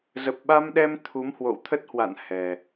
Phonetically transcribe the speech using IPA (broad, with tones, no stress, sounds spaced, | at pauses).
z ə˨˩ p̚ ɓ a˧ m ɗ ɛ˧ m t̪ʰ u˨˦ m h w o̰˧˨ w t̪ʰ ə˦˥ t̚ h w a̰˧˨ n h ɛ˨˩